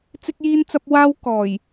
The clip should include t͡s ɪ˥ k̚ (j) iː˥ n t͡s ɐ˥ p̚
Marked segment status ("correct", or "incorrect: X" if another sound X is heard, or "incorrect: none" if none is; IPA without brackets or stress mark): correct